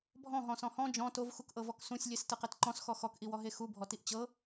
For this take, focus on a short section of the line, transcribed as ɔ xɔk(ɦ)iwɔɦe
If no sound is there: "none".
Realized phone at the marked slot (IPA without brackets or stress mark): ʔ